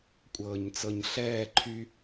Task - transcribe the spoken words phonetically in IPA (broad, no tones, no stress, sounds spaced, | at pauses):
kʷʼ ɤː ɲ t͡s ɤ ɲ ɬ ɛː ǃʰ y